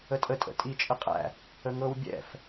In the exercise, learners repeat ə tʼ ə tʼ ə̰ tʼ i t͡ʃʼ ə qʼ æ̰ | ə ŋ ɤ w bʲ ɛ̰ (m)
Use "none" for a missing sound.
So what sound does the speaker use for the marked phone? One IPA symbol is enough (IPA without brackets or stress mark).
f